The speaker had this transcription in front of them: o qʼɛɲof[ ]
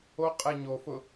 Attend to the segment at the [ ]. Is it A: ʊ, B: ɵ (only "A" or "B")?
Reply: A